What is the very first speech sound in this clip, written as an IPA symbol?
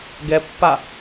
ɡ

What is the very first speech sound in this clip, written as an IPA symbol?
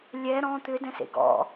lʲ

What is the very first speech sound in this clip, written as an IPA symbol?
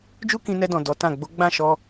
d͡ʒ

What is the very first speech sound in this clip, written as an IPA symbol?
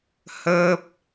h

